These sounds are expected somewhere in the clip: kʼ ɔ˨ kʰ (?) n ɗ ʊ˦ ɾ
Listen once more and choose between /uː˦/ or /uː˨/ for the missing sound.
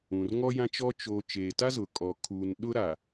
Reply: uː˨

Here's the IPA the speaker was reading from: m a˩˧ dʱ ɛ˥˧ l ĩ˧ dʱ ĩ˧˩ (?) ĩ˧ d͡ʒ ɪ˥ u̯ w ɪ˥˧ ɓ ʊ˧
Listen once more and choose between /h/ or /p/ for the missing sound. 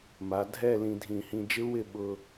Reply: h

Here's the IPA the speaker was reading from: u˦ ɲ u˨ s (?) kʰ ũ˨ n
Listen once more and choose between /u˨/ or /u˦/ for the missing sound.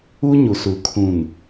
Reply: u˨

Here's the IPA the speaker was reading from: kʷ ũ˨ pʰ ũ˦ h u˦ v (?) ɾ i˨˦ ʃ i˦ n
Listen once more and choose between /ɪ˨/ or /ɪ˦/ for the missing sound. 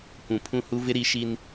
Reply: ɪ˦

